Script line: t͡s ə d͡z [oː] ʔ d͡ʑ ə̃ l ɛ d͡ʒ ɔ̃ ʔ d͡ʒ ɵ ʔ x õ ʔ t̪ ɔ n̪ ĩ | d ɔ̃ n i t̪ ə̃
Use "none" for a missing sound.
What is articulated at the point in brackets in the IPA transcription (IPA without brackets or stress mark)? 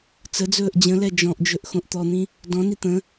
ɵː